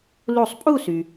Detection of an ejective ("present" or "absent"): present